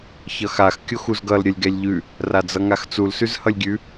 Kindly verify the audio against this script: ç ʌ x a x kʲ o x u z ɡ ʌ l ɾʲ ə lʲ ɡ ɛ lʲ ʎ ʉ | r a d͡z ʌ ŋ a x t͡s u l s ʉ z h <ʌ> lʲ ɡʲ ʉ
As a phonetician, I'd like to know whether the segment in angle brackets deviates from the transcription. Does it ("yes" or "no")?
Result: no